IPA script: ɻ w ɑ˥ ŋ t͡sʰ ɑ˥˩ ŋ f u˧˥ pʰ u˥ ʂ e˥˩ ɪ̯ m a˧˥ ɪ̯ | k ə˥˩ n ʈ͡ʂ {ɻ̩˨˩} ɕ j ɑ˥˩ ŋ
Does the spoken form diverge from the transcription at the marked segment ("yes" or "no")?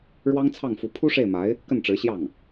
yes